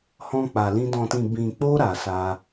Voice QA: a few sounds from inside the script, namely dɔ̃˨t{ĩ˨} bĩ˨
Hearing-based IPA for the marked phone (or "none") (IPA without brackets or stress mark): ĩ˨